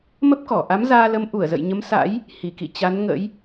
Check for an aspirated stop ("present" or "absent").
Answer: absent